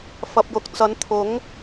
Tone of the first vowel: low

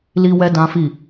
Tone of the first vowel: high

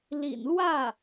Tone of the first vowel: low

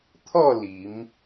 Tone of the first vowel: falling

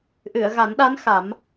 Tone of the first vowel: low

